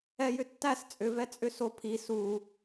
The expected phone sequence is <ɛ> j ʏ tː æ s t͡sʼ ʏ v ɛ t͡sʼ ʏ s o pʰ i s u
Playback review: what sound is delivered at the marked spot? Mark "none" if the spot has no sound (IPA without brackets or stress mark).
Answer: ɛ